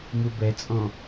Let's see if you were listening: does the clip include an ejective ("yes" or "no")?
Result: yes